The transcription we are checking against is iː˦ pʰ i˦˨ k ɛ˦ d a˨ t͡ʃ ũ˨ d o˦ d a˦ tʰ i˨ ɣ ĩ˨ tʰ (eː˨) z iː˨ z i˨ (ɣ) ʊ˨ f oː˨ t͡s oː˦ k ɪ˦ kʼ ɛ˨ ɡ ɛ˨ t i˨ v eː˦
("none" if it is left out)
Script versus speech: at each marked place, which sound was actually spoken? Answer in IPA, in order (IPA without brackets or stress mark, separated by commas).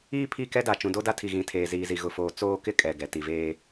eː˨, ɣ